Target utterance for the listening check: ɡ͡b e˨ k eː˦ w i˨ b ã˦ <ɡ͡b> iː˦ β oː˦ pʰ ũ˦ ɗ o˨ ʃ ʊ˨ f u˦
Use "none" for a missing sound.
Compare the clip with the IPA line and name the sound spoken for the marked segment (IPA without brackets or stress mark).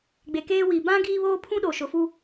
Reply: ɡ